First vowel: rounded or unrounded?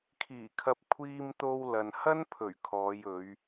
unrounded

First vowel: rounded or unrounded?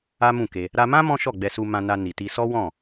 unrounded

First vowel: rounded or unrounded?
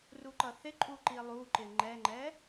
rounded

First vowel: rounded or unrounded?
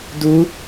rounded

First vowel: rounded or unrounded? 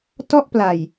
rounded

